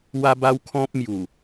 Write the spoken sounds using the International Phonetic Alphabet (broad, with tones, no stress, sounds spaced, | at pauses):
w a˦ b a˦ w kʰ ɔ̃˦ p̚ m j u˨˩